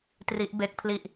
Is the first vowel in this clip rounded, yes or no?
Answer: no